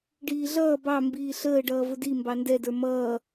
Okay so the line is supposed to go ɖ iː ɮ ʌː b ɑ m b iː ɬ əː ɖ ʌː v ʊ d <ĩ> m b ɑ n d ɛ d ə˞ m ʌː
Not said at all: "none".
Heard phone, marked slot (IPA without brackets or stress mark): i